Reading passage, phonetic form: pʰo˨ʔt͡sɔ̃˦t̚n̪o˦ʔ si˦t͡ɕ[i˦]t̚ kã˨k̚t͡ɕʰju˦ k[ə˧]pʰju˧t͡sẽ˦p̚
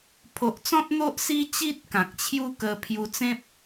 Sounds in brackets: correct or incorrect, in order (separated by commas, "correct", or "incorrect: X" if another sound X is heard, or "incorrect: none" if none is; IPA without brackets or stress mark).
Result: correct, correct